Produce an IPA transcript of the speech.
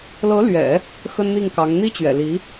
l ɤ˧˥ l ɥ ɛ̰˨˩˦ | x ə˥ n n̪ i˥˩ ŋ k ɑ˧˥ ŋ n̪ i˥ t͡ɕ ɥ ɛ̰˨˩ l i˧˥

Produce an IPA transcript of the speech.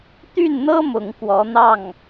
t̪ y˥˩ n n̪ ɤ˥ m ʊ˧˥ ŋ k w ɔ˧˥ n̪ ɑ˥˩ ŋ

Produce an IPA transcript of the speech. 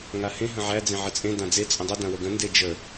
ŋ a h ẽ ɦ ə̃ ʕ æ d͡z ẽ ʕ ə t͡sʼ ẽ d ã d͡z e t͡sʼ ə̃ dˤ ə d ã w ə ɡ ə̃ n d e d͡ʒ ə

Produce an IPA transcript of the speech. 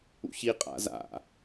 ṵ ç i qʼ a̰ z a̰

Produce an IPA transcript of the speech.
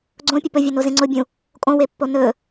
ɡ͡ǀ õ pʲ ɵ p ɵ vʲ ɵ n o z ẽ ŋ͡ǀ ʊ bʲ ũ | kʼ õ w e pː o n ɵ

